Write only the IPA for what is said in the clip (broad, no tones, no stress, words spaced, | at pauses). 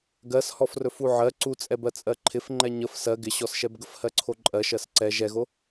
ɡɜs hɔfrɵfuʕɜ ǀut͡sʼɛbɜt͡sʼɜ ǃʰɪfŋ͡ǃɛ ɲəf sɜ ɡɪɕɔsʃɛbɡəf hɜǀʰoǃʼɜ ʃɜsǀɛ ʒɛɣo